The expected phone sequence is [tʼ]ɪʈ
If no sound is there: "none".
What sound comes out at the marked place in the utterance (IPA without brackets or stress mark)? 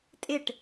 tʼ